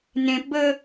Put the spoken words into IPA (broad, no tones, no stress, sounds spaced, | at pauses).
n ẽ p b ə